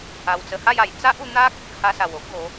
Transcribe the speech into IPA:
a˧ w t͡s ə˧ h a˥˧ j a˨˩ j t͡s a˦ ʔ u˧ n̪ a˦ k̚ | h a˧ s a˨˩ w o˦ ʔ ɡ o˨˦

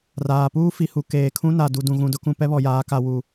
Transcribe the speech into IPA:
r aː˨ p uː˦ f i˨ h u˨ k eː˨ kʰ ũ˦ n a˨ d u˨ d ũ˨ ɣ ũ˨ d ʊ˦ k ũ˨ p ɛ˦ β ɔ˨ j aː˨˦ k a˨ w u˨

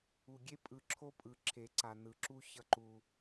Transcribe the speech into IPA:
u˨ ɡʲ e˦ pʼ ɯ˨ ǁʰ o˦ pʼ ɯ˨ ǁʰ e˨ ǀ a˨ n ɯ˨ ǁ u˦ ç ʌ˦ ǃ u˦

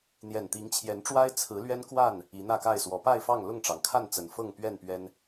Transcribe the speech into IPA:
n̪ j ɛ˨˩ n t̪ i˨˦ ŋ t͡ɕʰ j ɛ˨˦ n ʈ͡ʂ w a˦ ɪ̯ t͡sʰ ɹ̩˨˦ l ɥ ɛ˦ n k w a˥˨ n | i˨˦ n̪ ä˥˨ k a˥˨ ɪ̯ s w ɔ˨˦ p a˥˨ ɪ̯ f ɑ˥˨ ŋ l ʊ˥˨ ŋ ʈ͡ʂ ɑ˩ ŋ kʰ a˥˨ n t͡s ə˨˩ n f ɤ˥˨ ŋ p ɥ ɛ˥˨ n p ɥ ɛ˦ n

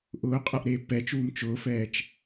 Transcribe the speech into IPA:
ʔ ʊː qʼ ɐ ʔ ɾ eː pː ɛ t͡ʃ uː m t͡ʃ ʊː f ɛː t͡ʃ

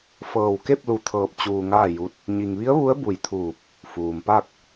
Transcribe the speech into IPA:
f ɤː˧˩ w k e˥˨ p̚ l u˧ t̪ʰ ɤː˧ p̚ t͡ɕ uː˧ ŋ aː˥˨ j u˧˥ t̚ | ɲ i˧ ŋ ʋ i˧˥ ə̯ ʋ u˧˥ ə̯ b u˧˩ j t̪ʰ uː˧˩ p̚ | f uː˩ m p a˥˨ k̚

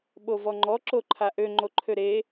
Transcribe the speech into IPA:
ɓ o v ɔ ŋ͡ǃ ɔ ǁ o ǃʰ a ʔ ø ŋ͡ǃ o ǃʰ ø ɾ e

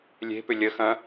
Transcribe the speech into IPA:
lʲ e̤ p ʏ lʲ ə x ɐ̃

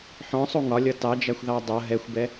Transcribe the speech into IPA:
ħ ɔ̃ sˤ u ŋ ɒ lʲ ʌ t ɑ d͡ʒ æ xʷ ð ɑ dˤ ʌ ɦ ɛ xʷ b ɛ

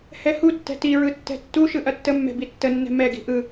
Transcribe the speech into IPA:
h ɛ h u tː ɛ̤ t i ɹ ɯ tː ɛ̤ tː u ʃ ɯ ʔ ɐ tː ə mː ɛ̤ b i tː ə nː ɛ̤ m ɛ ɡ i̤ ʔ ɯ

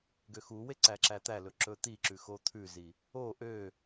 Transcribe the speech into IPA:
ɡ ø x u w e ǀ æ ǁ æ t̪ æ l ɵ ǁ ɵ t̪ i ǁ ʉ x o t̪ʰ ʉ z i | o ʔ ø

